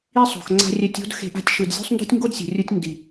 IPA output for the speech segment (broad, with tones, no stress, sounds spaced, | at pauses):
i˦ sˤ o̤˨ x ŋ͡ǀ a̤˧ rʲ ɛ˧ tʲ o̤˦ d x e̤˧ ʔ a̤˧ tʲ ʃ ɯ˨ d zʲ o̤˦ sˤ n d o̤˦ tʲ ŋ ɡ o˦ d sʲ o̤˨ rʲ u˧ tʲ n d i˨